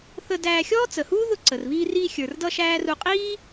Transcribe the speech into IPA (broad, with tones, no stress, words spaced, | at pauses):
θə˧dæː˧ xʲɔː˥t͡sə˩huː˥ðʊ˧ ǀə˩r βiː˧riː˧ xʲə˞˩rdʌ˧ ʃæː˥ru˧ qʼiː˥